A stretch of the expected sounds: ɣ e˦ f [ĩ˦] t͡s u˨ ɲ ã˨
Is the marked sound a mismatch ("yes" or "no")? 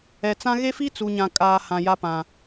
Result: yes